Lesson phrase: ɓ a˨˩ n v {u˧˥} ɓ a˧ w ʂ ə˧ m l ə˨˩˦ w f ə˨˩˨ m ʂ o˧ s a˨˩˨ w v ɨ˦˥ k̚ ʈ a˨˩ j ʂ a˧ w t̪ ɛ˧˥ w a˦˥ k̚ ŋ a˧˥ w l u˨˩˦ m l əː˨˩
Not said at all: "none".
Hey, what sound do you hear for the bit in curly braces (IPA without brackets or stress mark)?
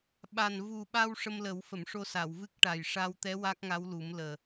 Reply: u˨˩